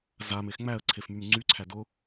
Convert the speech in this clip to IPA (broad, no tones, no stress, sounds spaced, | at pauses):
z a m e x ŋ͡m æ ə̯ ǀʰ e f m y m ŋ͡ǀ y ǀʰ æ d ʊ